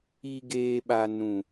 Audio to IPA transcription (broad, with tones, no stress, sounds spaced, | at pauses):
i˦ ɡ eː˦ ɓ a˦ n ũ˦